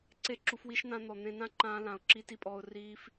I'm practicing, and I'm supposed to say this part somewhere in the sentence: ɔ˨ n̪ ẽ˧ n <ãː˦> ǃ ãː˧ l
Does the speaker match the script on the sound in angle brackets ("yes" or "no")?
no